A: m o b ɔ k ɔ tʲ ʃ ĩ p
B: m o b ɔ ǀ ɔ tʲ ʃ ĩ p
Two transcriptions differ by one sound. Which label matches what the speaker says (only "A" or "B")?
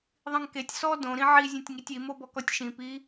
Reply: A